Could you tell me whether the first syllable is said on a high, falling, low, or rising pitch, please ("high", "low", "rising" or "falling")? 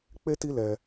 high